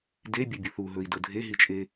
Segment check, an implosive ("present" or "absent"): absent